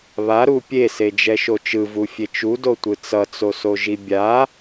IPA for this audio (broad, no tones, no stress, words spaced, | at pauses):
βaɾu pʲesed͡ʒɛʃo t͡ʃɯvufʲe t͡ʃudotʷɯ t͡sʌt͡sosoʒi bʲa